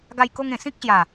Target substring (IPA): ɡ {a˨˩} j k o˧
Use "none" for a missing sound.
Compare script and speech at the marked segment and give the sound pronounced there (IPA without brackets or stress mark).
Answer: a˧